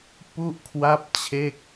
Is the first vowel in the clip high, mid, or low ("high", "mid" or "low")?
high